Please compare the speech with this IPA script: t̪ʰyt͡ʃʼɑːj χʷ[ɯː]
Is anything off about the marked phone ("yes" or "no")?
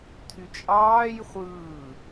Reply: no